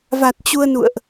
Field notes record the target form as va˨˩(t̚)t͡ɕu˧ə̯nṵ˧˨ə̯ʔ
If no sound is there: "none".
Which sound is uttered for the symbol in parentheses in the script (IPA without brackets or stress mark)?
t̚